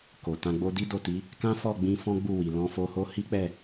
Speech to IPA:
k o˨ t ã˧ ɡ͡b o˧ d i˦ d o˦˨ t i˨˦ | k ã˦ f ɔ˦˨ ɡ͡b ĩ˧ f ɔ̃˦ ɡ͡b u˦˨ w i˨ l ɔ̃˧ f o˧ h o˦ h i˦ k͡p ɛ˦˨

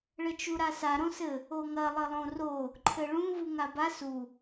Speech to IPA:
ɭ ɘ t͡ʃ u ɾ a s a ɾ õ s ɘ | o ŋ ɐ lˠ ɘ lˠ õ r o | ǃʰ ɘ ɭ ũ v u ŋ a b a s u

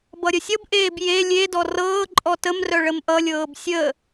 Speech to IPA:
b ʌ ɾʲ ə sʲ ʌ b ʔ eː b j e lʲ e d ɔ r ɤː ǃʼ ɔ t ə m r œ ɭ ə m ʔ ʌ lʲ ɤː b sʲ ə

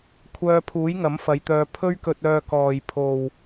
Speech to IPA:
kʷʰ œː˧ pʰ uː˨˥ j ŋ ɐ˨˥ m f ɐ˨˧ j t̪ œː˧ pʰ ɵ˥ ɥ k ɵ˧ t̚ œː˧ k ɔː˨ j pʰ o˨ w

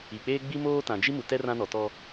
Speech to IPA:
i˨ k͡p eː˦ ɡ͡b i˦ m oː˦ t ã˨ d͡ʒ i˦ m u˨ t ɛ˦ r ã˦ n ɔ˨ t ɔ˦

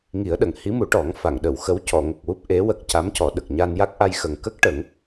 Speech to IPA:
ŋ i˨˩˦ ə̯ ɗ ə˨˩˨ ŋ h i˧˥ m u˨˩˦ ʈ ɔ˨˩˦ ŋ f a˨˩˨ ŋ ɗ ə˨˩˨ w x ə˧˥ w c ɔ˨˩˨ ŋ ə˨˩ k̚ w u˦˥ p̚ ʔ e˧˥ w ə˨˩ k̚ c a˧˥ m c ɔ˨˩˦ ɗ ə˨˩ k̚ ɲ a˧ n j a˦˥ k̚ ʔ a˧ j x ə˨˩ ŋ k ə˦˥ k̚ ʈ ə˨˩˦ ŋ

